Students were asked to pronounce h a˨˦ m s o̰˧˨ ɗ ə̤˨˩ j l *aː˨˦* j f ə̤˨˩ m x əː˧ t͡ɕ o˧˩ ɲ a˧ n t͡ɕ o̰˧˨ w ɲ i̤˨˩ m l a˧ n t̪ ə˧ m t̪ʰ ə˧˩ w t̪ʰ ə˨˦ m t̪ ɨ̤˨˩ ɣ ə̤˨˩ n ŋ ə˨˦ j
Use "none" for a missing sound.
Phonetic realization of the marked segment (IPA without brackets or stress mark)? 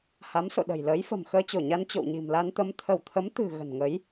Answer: əː˨˦